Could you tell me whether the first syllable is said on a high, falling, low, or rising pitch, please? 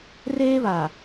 high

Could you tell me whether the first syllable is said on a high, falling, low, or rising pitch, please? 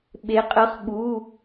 rising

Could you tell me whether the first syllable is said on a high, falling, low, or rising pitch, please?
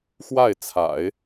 falling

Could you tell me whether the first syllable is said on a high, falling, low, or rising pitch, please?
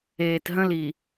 low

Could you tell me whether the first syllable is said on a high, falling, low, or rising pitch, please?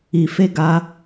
low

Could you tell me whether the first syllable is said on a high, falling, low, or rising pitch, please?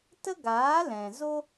high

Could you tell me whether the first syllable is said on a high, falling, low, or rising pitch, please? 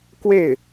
falling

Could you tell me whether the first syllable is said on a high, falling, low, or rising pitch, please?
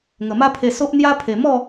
low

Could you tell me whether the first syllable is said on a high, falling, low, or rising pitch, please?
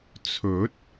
rising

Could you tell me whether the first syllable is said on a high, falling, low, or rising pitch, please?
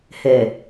low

